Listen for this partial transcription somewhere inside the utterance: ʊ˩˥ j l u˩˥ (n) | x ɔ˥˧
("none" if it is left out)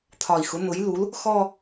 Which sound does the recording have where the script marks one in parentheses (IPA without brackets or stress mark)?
l